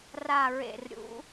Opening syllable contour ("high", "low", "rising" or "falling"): falling